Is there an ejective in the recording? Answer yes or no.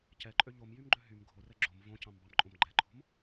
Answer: yes